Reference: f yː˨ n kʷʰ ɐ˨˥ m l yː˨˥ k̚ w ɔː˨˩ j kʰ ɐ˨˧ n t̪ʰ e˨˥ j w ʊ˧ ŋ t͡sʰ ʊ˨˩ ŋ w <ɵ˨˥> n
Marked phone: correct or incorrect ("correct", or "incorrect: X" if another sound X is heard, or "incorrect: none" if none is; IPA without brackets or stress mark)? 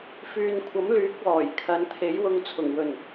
incorrect: ɵ˨˩